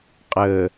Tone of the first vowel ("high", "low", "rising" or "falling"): low